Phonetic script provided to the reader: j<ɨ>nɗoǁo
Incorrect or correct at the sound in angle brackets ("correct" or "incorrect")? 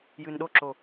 correct